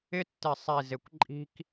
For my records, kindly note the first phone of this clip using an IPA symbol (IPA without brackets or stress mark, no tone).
ɪ